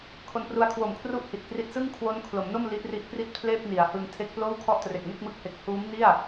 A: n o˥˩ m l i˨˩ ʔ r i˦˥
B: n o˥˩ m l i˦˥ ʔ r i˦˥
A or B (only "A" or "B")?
B